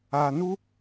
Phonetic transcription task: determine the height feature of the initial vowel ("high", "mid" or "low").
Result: low